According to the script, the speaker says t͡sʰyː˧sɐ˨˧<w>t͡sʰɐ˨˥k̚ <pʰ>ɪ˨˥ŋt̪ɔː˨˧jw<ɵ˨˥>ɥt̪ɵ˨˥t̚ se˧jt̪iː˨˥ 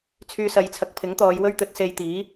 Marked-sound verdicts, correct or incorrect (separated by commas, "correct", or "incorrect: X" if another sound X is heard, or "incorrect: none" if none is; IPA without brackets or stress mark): incorrect: j, correct, incorrect: ɵ˥